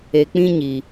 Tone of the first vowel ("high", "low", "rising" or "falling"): low